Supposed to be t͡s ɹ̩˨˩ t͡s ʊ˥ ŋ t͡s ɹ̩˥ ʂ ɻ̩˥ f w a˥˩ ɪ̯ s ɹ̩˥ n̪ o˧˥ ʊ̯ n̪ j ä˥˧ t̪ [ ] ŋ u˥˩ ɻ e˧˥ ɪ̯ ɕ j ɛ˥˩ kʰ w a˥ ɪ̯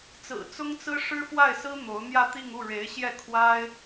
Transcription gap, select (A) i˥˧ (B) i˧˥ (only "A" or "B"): A